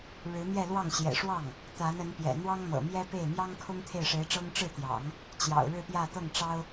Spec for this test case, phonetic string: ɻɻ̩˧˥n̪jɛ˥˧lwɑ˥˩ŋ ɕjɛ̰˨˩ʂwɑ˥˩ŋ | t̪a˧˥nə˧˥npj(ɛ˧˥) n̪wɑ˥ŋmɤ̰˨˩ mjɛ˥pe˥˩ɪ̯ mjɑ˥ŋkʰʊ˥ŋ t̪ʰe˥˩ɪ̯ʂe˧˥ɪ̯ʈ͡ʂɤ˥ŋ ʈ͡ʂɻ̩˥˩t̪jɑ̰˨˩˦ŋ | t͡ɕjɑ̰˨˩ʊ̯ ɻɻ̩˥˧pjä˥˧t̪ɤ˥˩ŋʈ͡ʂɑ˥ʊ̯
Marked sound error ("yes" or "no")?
yes